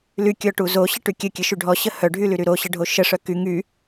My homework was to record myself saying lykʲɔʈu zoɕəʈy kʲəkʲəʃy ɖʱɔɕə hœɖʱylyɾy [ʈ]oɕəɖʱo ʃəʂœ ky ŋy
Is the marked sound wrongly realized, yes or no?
yes